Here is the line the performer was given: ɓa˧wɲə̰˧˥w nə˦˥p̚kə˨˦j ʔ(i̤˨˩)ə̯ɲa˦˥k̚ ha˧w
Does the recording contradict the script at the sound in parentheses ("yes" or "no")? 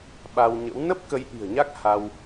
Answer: no